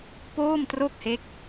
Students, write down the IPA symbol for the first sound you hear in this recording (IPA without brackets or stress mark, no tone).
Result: p